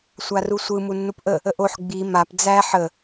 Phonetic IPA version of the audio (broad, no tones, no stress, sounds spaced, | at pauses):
sʷ a r u sʷ ɯ m u nː u p ʔ ə | ə ʔ o ħ ɡ͡b i m a p d͡z æ ħ ə